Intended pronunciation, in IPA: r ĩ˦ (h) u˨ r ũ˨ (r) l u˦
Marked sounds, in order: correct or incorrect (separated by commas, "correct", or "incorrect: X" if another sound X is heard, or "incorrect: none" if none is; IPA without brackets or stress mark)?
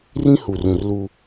correct, correct